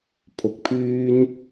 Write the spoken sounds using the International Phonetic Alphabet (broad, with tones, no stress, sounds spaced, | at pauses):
pʰ ʊ˨ k̚ pʰ yː˥ n